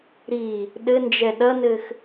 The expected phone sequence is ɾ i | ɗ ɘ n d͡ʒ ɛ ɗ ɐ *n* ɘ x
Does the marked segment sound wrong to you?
no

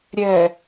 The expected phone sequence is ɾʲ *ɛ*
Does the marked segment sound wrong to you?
no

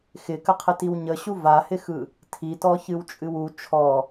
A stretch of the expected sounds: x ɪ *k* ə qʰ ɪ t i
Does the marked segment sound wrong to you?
no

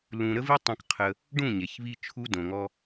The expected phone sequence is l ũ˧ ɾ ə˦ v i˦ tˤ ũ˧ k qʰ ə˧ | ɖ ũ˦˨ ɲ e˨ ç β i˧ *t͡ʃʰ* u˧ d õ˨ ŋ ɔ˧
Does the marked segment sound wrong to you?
no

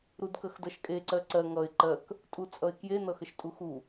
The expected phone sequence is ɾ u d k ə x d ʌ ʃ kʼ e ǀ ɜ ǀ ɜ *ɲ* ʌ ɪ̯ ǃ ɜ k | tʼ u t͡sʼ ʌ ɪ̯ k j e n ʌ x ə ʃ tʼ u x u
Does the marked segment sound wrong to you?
yes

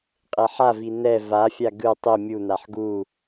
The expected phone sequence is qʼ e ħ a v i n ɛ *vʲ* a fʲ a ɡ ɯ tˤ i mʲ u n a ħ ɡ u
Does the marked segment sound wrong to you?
yes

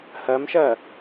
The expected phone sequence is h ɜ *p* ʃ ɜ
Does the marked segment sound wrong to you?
yes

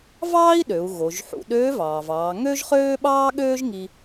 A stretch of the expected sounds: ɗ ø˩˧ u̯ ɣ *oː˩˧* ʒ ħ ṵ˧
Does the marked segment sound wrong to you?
yes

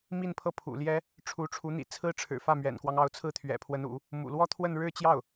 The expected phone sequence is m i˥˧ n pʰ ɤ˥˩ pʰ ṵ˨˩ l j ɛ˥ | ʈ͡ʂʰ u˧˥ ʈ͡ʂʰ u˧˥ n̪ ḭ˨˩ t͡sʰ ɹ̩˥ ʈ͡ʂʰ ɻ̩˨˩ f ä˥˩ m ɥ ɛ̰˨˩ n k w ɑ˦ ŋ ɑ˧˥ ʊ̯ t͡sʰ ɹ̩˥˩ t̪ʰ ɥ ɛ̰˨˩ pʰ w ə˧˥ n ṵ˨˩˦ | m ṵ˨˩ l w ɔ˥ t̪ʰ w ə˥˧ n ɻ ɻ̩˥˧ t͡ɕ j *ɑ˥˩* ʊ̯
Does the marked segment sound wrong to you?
no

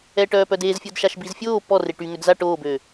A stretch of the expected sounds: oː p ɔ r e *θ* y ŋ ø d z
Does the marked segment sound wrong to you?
yes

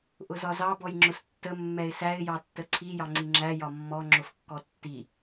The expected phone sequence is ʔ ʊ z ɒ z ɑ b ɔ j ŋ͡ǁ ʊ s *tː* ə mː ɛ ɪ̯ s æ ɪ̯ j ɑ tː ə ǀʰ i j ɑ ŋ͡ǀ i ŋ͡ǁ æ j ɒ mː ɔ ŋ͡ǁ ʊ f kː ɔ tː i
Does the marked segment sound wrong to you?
no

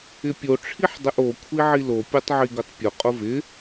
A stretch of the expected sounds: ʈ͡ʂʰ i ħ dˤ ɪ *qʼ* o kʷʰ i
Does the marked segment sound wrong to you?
yes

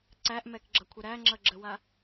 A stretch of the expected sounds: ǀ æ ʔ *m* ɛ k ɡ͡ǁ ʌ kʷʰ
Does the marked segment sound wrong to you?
no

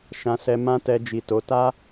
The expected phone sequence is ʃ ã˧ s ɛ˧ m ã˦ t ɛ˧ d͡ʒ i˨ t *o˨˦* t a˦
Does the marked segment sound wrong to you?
no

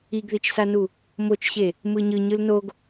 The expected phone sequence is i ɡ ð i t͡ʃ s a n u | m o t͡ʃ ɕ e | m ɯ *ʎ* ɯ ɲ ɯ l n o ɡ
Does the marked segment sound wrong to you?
yes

